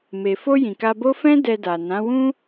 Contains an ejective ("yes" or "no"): no